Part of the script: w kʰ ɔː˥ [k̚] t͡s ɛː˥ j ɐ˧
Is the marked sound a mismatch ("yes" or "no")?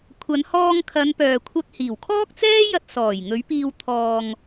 no